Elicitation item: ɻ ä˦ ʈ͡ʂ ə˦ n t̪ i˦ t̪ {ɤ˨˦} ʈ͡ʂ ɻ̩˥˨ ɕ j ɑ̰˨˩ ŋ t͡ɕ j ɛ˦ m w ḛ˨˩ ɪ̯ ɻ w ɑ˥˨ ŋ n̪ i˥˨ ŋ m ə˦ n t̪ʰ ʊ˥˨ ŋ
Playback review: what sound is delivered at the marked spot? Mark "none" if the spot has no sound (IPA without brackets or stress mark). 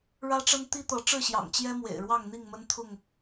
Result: ɤ˨˦